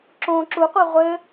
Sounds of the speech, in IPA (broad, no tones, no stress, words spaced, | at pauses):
ǁõ ǁuqʷɘ ʁʷɘ